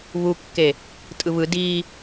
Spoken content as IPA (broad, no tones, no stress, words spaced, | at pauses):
βukːe | tʼɯβɯ di